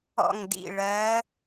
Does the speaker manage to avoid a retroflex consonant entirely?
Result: no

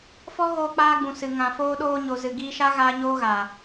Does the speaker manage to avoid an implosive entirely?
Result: no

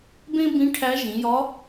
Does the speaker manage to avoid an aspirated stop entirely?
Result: no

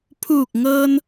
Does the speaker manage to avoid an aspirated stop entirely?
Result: no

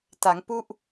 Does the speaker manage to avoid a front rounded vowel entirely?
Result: yes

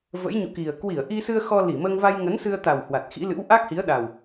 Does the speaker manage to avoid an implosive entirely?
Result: no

